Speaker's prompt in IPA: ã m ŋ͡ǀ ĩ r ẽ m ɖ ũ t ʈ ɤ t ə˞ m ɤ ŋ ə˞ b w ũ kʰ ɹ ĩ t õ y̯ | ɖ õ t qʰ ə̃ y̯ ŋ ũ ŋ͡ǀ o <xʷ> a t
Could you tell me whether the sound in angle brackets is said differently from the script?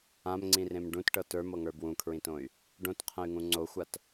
no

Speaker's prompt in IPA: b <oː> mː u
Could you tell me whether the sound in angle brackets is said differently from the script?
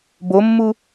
yes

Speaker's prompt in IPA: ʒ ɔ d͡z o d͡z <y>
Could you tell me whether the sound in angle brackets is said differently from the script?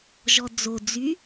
no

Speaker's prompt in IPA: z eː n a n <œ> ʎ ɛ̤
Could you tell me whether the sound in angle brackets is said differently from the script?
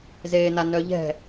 no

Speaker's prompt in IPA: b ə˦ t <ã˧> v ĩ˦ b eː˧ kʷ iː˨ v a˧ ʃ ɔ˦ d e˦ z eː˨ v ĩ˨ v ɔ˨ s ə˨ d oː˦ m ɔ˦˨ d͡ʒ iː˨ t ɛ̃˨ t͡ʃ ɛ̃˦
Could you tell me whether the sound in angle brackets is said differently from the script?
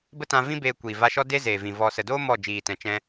no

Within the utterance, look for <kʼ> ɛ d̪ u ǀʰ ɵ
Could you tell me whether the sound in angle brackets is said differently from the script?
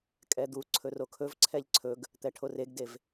no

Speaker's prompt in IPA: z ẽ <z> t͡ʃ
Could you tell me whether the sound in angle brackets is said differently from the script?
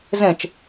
yes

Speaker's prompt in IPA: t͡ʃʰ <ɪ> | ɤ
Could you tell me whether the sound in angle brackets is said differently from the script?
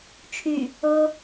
yes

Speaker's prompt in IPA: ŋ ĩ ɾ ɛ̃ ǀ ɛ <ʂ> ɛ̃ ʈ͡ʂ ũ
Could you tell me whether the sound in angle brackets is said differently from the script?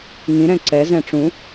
yes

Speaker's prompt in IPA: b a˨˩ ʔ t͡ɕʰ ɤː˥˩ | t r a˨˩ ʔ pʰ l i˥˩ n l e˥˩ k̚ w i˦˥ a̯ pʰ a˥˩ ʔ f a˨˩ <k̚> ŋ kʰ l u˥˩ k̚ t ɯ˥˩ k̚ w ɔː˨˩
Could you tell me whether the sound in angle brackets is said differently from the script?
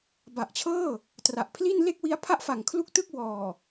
yes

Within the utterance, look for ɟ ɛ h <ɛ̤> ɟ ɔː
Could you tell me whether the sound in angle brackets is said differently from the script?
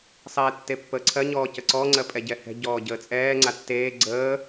no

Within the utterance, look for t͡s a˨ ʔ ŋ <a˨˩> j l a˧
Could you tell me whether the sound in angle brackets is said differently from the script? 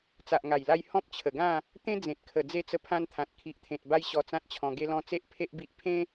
no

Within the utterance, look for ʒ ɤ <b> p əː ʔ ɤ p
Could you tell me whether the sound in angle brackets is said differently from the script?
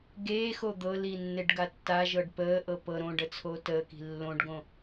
yes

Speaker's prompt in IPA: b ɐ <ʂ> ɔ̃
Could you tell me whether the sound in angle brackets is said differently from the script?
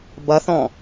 yes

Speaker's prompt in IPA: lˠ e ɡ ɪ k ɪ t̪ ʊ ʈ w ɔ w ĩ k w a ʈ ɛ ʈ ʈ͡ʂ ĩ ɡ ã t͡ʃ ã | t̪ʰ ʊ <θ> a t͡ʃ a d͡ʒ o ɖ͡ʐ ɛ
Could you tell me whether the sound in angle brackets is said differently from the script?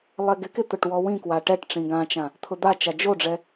yes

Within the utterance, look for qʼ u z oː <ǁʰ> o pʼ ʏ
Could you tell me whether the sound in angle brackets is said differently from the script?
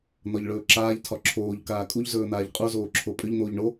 no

